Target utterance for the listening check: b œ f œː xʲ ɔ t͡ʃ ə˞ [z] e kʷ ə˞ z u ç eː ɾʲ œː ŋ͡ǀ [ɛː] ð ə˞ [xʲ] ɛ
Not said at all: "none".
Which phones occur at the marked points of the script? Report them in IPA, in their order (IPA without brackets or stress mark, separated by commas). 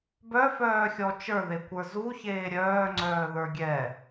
ð, œː, ɡʲ